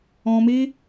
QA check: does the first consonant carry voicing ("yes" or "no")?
yes